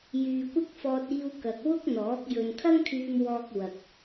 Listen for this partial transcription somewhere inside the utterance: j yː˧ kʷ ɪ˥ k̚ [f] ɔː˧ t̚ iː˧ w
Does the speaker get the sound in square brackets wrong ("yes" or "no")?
no